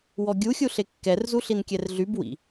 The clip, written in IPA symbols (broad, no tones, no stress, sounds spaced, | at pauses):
w ɔ ɡʲ u xʲ u ɬ e kː ɛ r z u ɬ i n kʲ ɛ r ɮ y b w ḭ